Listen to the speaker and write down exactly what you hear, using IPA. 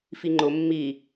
fiŋ͡ǃʊ mːi

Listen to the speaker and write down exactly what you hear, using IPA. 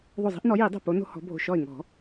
ðˤo˧˩zˤi̤˦ʔnɔ˨˦ji˨˩˦ dˤo̤˧˩po˨˦ no̤˦hɔ̤˨˦bʱo̤˧˩ ʃɔ˧˩ɪ̯ŋɔ̤˨˩˦

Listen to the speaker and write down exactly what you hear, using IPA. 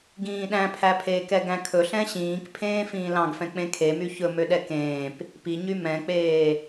ɡĩːɗæ̃pʰæpʰeːk ɛɡæ̃kʰɵ ɬɛ̃ɕĩːkpʰẽː fĩːlɑ̃ɡfɛ̃ k͡pẽkʰemy çɵmøɗɛ kẽːp | piɲy mɛ̃k͡peː

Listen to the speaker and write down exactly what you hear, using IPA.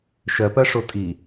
ʃɜpɜʂo tʼi

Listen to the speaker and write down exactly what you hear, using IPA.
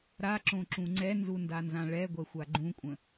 ɾaǁõǁũ ŋ͡ǀɛnzundanzã ɭɛɡʷɛxʷa ɡ͡ǃũkʷʼə̃

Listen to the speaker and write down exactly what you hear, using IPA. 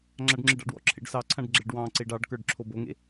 ŋ͡ǁaɖŋ͡ǁeɖɑ̰ɖwɔ̰ ǁʰḛɖsɑǀʰãɖ ɡ͡ǁeɖwɑ̃ǀeɖ ɑɖ kə˞ɖǁʰoboŋḛ

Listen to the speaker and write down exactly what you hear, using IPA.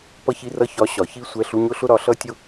pʌ˥˧çi˥˧rʌ˥˧ çɒ˧˥˧ ɕɒ˩˥çi˥˧sʷɛ˧˥˧ ɬu˧˥˧ɲʊ˥˧ɬʊ˥˧ ɾɒ˩˥ɬʌ˧˥˧tʲʊ˥˧

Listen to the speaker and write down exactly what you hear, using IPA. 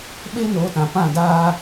ɓeː˦noː˨˦tã˨ pã˦˨daː˦

